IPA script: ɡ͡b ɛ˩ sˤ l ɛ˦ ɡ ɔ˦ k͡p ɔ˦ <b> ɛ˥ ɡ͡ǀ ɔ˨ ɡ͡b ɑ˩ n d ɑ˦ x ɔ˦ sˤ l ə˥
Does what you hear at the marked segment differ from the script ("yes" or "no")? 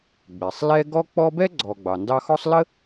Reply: no